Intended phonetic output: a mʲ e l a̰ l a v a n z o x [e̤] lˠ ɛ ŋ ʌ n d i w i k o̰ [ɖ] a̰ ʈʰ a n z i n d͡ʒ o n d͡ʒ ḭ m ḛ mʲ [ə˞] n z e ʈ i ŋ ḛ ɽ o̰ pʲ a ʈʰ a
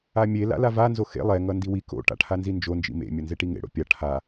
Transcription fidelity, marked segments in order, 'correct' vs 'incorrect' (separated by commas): incorrect, incorrect, incorrect